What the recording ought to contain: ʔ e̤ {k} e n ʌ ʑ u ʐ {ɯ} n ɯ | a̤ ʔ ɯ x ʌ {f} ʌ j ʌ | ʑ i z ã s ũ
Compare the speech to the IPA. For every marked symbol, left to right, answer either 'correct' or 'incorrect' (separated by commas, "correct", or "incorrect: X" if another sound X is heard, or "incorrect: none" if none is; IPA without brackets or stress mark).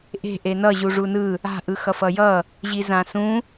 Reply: incorrect: ʔ, incorrect: u, correct